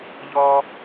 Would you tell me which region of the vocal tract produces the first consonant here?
palate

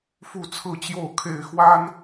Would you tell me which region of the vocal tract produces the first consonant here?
lips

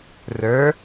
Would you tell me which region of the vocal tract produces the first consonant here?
tongue tip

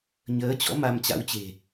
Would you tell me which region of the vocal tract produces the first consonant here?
palate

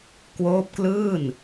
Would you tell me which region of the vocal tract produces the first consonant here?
velum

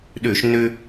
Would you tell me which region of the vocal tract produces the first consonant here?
tongue tip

